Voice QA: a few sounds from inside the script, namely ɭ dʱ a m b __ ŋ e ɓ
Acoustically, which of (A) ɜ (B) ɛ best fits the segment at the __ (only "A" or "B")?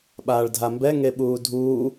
B